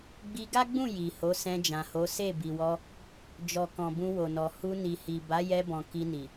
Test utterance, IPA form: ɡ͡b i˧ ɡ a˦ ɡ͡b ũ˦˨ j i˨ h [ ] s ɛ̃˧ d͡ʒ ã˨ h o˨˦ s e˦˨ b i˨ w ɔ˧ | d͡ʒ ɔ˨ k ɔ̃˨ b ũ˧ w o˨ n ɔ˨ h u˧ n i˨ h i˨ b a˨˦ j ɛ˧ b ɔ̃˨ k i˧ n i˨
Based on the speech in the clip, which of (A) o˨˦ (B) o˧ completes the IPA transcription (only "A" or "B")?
A